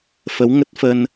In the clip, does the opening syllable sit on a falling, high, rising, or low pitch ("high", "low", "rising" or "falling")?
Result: rising